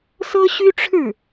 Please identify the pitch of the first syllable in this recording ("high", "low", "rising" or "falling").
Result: high